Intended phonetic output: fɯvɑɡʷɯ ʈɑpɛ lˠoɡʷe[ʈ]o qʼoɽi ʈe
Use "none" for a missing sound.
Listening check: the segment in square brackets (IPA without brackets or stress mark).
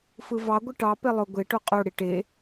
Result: ʈ